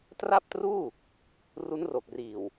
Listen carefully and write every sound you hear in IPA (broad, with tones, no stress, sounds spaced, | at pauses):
t r a˥˩ p̚ t r uː˥˩ | r u˦˥ n r o˨˩ k̚ r iː˨˩ w